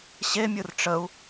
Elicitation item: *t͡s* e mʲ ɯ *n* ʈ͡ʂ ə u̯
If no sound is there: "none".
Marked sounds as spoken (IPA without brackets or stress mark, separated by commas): ɕ, r